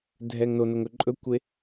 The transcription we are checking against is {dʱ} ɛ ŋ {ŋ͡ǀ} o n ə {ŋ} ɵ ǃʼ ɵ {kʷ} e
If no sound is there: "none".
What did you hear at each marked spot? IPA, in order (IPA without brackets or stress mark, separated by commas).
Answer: dʱ, n, ŋ, kʷ